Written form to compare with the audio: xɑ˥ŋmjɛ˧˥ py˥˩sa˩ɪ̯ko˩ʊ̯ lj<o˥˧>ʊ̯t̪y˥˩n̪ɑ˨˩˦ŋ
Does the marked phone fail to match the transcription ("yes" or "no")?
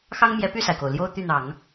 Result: no